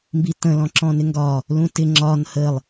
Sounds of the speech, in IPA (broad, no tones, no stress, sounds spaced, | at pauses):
m b i t ə̃ l ɔ̃ ǁ ɔ̃ n ɪ ŋ ɡ ɒ | l ũ t ɪ ŋ͡ǁ ɒ n h ə lˠ